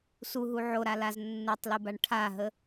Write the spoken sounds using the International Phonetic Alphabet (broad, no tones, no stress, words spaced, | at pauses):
suɦu ʕoɾalaz nːutˤlubaɳ ʈʰaɦə